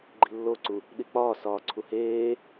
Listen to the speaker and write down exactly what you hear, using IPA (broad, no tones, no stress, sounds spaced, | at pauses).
ɡ͡ǃ i̤ lː o ǀ u | ɗ i k͡p ɒː s ɒː ǀʰ u h eː